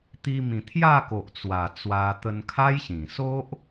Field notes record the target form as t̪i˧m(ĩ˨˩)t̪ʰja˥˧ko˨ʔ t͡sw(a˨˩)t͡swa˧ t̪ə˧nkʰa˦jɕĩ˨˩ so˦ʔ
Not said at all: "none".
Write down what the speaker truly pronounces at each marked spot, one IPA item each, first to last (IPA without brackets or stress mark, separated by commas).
ĩ˨˩, a˨˩